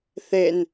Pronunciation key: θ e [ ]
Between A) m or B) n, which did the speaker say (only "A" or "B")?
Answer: B